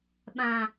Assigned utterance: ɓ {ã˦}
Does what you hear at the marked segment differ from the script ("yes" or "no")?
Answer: no